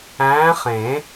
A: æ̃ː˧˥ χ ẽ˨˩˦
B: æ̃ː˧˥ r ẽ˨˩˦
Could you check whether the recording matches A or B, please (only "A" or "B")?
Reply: A